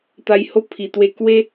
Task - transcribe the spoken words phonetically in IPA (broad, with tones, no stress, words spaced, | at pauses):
t̪a˧jho˦ pʰi˨˩t̪we˧ kwe˦